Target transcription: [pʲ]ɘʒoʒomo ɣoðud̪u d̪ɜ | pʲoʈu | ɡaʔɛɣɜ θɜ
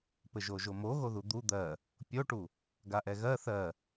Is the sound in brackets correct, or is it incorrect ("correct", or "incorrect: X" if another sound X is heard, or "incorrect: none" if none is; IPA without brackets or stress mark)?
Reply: incorrect: p